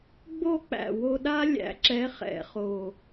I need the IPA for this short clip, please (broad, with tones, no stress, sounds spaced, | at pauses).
ɡ͡b o˦˨ k͡p æ̰˨˩ w o˦˨ ɗ a˦ lʲ æ̰˨˩˦ ǁ ɛ˨˦ χ ɛ̰˨˩˦ χ o˨˩